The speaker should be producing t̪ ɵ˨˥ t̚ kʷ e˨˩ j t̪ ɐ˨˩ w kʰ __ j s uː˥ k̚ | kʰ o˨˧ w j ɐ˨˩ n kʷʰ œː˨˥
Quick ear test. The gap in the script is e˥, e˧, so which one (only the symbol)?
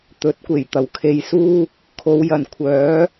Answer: e˧